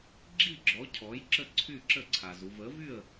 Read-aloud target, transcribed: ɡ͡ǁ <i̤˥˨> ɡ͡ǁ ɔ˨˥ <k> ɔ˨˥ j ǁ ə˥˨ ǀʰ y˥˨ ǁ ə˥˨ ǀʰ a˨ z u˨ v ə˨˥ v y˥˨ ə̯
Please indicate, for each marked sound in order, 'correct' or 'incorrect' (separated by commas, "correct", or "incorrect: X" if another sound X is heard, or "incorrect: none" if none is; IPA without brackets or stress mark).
incorrect: i˥˨, incorrect: cʰ